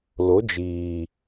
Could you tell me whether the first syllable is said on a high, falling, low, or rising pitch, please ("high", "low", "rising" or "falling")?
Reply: rising